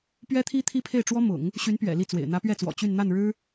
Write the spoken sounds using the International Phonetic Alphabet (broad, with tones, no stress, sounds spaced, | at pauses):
p ɥ ɛ˥ t̪ʰ i˥ t̪ʰ i˥ pʰ e˥˩ ɪ̯ ʈ͡ʂ w ɔ˥ m ʊ̰˨˩˦ ŋ | ɕ y˧˥ n p ɥ ɛ̰˨˩ l i˥˩ t͡s w ḛ˨˩ ɪ̯ n̪ ä˧˥ p ɥ ɛ˥˩ t͡s w ɔ̰˨˩ t͡ɕ y˥˧ n n̪ a˥˩ n ɻ ɻ̩˥